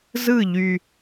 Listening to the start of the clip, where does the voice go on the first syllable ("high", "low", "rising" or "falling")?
falling